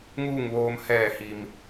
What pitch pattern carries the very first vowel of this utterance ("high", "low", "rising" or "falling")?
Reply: falling